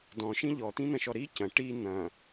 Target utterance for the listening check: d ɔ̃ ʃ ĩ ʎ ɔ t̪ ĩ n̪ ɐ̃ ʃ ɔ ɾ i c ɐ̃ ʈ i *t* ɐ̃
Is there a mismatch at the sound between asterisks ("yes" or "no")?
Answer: yes